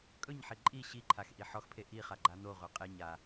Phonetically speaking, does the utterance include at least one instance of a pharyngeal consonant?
yes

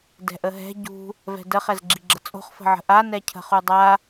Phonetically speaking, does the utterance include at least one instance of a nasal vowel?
no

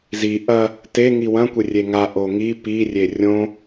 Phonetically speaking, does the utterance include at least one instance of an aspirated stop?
no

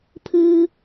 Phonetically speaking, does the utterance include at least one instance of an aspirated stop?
yes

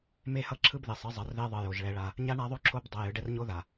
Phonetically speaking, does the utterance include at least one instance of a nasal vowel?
no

